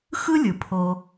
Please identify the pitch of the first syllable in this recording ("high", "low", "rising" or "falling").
high